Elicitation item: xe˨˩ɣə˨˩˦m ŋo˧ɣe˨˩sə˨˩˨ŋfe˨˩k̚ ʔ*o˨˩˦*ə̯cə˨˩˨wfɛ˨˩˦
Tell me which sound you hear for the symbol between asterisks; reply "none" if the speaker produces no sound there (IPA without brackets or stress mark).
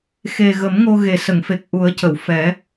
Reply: u˨˩˦